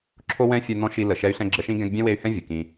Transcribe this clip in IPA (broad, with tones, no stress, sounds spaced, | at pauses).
ǁʰ o˥ w ɛ̃˥ fʲ œ˦ n ɔ̃˥ ʃ i˦ l ə˨ ʃ ɛ˦ y̯ ɬ ɛ̃˦ ɡ͡ǁ ə˦ ʃ ĩ˥ ɡ ɛ̃˦ ɡ bʲ ɛ̃˥ w e˦ y̯ h ɛ̃˥ vʲ ə˩ k ĩ˨